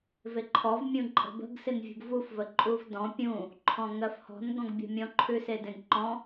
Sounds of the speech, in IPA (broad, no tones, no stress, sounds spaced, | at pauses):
v e ǃʰ ɔ v mʲ ũ ǃʼ ə̤ b ə̤ ɡ s ɪ n vʲ ṳ ɡ v u f v ə ǃʼ u v d ɔ̃ pʲ ũ | ǃʰ ɔ̃ ŋ ɜ f h ɔ̤ n ɡ ɔ̃ ɡ bʲ ɔ̤ mʲ ɔ̃ ǃʰ ʉ s e d ẽ ɡ ǃ ɔ̃